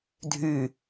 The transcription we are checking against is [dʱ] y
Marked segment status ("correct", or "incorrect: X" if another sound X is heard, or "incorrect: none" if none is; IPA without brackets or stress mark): correct